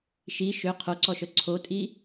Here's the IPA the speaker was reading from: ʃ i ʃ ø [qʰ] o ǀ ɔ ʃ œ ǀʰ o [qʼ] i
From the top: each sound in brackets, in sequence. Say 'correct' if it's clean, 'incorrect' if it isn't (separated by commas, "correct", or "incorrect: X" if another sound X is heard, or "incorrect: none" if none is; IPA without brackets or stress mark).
correct, incorrect: tʼ